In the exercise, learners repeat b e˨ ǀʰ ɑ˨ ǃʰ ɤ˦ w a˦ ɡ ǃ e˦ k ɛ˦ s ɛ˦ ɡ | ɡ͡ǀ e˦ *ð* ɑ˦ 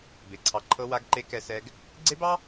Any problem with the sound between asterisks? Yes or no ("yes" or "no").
yes